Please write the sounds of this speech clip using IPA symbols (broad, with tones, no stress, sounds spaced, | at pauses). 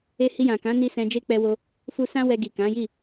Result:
e˧ h i˧ j ã˨ k ã˨˦ n i˧ s ɛ̃˧ d͡ʒ e˦ k͡p ɛ˧ w o˧ | f u˧ s ã˦ w ɛ˧ ɡ i˨ k ã˨˦ j i˦˨